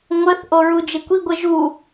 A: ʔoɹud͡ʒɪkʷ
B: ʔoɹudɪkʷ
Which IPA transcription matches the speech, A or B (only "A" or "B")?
A